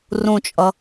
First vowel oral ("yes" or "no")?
no